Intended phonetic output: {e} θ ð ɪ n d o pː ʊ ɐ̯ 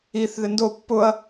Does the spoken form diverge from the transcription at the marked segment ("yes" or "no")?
yes